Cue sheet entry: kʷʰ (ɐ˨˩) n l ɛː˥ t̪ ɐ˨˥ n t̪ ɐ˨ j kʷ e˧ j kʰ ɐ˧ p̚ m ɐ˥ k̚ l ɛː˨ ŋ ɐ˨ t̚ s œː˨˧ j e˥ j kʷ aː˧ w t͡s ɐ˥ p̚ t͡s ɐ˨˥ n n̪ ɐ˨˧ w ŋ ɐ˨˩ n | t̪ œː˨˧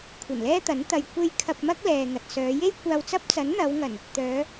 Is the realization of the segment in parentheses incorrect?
no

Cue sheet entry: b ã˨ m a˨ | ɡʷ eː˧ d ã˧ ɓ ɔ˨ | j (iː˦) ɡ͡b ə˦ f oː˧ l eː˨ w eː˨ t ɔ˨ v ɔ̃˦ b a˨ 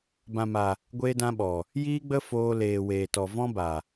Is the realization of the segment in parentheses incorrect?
no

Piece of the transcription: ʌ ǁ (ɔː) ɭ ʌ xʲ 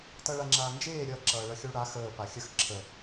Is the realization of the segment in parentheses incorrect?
yes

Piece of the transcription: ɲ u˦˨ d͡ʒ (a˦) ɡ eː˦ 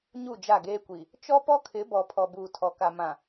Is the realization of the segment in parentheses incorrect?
yes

